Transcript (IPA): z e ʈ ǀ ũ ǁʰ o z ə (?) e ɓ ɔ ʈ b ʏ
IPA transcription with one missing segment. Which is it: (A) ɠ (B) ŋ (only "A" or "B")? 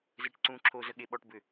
A